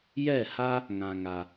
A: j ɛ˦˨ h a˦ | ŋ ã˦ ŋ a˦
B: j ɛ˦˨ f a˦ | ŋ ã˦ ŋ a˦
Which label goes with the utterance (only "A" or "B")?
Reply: A